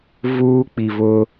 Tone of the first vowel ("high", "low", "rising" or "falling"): high